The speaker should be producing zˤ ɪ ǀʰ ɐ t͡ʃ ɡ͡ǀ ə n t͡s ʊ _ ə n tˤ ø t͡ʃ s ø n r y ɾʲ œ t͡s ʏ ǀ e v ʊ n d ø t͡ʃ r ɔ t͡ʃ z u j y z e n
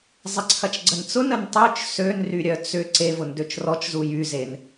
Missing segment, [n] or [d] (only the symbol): n